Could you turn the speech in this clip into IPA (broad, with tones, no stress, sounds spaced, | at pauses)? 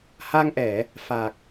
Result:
h a˧ ŋ ʔ ɛ˧˩˨ | f a˨˩ k̚